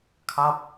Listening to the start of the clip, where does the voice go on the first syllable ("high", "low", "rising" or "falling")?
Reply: falling